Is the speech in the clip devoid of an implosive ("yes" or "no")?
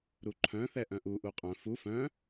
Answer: yes